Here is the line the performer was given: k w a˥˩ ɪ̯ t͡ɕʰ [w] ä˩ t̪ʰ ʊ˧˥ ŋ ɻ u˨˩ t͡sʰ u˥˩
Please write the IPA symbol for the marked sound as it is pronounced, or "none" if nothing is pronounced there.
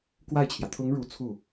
j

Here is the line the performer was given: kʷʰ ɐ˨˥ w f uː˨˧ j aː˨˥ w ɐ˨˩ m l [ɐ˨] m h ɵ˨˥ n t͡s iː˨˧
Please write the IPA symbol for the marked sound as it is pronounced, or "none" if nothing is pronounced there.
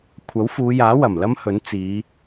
ɐ˥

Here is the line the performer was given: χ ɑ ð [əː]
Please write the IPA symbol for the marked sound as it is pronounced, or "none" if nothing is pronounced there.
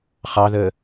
əː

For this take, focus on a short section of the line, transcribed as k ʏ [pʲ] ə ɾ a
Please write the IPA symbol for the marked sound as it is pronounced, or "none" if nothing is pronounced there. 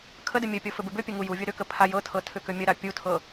mʲ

